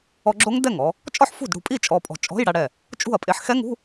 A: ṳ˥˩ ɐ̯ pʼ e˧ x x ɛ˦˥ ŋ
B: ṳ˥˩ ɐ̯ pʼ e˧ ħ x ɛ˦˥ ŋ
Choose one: B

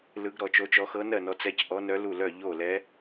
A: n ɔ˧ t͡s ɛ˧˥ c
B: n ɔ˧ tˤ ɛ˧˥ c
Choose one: A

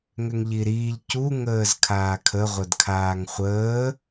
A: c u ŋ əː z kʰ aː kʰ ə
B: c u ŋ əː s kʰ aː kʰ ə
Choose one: A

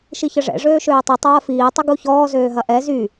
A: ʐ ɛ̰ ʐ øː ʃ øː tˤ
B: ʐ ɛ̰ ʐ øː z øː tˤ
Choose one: A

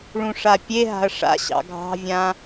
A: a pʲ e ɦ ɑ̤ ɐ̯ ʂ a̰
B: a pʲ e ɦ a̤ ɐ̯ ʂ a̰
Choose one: B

